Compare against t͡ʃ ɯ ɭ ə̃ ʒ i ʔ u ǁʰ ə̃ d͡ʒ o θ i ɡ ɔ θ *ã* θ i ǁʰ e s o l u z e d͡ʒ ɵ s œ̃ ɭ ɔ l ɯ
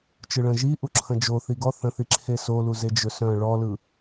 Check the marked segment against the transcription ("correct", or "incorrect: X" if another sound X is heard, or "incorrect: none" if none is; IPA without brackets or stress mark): incorrect: ə̃